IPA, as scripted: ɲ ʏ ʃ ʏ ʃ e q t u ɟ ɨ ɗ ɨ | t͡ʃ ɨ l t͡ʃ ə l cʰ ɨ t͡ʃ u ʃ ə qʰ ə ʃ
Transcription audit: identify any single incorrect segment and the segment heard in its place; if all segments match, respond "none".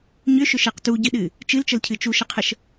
none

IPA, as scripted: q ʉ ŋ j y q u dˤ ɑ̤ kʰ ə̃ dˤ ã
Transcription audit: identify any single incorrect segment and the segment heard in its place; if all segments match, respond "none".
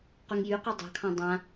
ə̃ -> ɑ̃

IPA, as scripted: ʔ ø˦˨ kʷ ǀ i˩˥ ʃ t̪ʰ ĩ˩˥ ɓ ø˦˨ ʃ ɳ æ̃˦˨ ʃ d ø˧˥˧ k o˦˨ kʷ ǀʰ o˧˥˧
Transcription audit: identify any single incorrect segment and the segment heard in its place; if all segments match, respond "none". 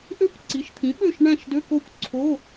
none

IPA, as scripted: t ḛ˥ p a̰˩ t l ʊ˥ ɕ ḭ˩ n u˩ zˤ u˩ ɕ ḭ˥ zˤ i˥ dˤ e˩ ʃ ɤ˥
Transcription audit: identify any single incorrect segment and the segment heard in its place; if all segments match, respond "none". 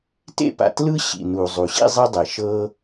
ʊ˥ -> ɯ˥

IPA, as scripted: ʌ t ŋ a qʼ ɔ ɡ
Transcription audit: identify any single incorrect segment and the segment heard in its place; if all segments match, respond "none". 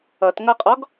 a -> ʌ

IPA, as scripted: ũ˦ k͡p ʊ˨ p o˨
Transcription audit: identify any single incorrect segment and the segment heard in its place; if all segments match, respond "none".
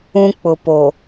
none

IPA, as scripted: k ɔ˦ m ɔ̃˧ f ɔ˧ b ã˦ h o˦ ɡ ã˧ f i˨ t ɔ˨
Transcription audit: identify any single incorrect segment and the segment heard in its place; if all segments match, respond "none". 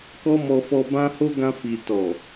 ɔ̃˧ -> ɔ˧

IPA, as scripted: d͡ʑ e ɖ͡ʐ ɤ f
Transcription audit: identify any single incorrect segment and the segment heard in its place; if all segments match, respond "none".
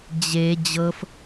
ɖ͡ʐ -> d͡ʑ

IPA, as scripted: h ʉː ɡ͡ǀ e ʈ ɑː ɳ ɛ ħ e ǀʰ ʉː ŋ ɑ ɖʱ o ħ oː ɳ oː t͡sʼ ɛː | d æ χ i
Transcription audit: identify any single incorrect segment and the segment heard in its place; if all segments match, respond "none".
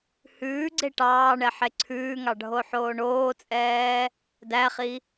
none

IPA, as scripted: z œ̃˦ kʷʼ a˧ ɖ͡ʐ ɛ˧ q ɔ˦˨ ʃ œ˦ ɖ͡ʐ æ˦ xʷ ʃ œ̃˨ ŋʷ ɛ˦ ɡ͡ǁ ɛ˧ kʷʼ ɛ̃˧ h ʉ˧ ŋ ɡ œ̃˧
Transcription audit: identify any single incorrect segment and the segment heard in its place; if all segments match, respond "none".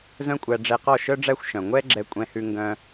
a˧ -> æ˧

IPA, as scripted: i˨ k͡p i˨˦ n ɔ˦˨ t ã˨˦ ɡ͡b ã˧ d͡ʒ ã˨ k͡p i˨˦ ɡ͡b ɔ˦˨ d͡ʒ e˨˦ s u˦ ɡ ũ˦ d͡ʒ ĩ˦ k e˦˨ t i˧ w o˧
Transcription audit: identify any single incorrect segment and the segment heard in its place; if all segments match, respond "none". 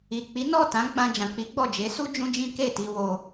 ɡ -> d͡ʒ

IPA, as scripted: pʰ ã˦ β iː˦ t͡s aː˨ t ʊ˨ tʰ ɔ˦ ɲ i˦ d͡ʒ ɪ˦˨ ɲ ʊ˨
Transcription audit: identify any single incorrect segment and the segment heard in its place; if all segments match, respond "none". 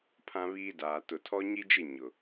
t͡s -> d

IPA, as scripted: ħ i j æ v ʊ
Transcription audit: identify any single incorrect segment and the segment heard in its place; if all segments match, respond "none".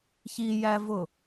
ħ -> ç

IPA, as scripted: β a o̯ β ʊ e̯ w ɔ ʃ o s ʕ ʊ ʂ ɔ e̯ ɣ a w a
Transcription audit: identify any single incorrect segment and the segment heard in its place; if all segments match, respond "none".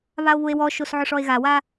none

